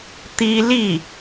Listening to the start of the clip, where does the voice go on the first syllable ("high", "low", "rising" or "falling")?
high